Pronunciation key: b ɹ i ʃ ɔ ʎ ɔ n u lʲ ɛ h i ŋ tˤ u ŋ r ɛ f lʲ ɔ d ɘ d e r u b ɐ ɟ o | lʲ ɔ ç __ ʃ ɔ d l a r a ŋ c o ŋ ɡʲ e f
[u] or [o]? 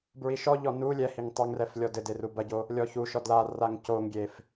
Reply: u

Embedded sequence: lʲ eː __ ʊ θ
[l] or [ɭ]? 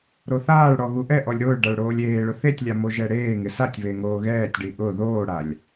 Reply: ɭ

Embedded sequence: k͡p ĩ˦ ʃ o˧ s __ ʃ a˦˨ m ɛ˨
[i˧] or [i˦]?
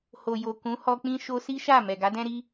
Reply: i˦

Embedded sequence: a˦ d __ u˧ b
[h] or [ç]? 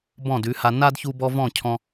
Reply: ç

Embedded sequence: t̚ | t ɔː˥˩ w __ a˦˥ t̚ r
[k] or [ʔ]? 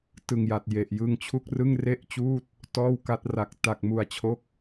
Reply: k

